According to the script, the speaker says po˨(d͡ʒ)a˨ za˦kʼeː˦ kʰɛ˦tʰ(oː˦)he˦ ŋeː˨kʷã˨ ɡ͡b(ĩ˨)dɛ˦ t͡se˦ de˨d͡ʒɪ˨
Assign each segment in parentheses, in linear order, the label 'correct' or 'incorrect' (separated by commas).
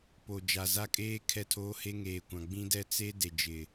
correct, correct, incorrect